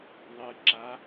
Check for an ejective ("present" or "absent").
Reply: absent